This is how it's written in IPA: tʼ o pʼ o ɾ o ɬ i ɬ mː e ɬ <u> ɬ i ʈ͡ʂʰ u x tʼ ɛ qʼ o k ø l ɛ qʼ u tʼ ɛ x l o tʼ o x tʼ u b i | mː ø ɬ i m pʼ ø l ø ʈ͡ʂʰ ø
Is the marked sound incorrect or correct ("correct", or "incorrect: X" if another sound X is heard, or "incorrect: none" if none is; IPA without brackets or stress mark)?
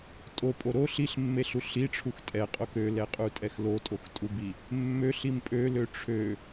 correct